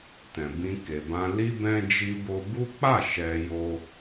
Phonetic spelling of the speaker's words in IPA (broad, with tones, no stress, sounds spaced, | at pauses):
t ɛ̃˨ b ĩ˧ k e˨ b ã˧ l i˦ b ɛ̃˦ d͡ʒ i˧ b o˧ b u˦ k͡p a˦˨ ʃ ɛ˧ j o˦